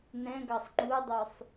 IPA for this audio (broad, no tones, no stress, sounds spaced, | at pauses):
n̪ ɛ̃ ɡ ɑ sˤ ŋ͡ǃ u dˤ ø sˤ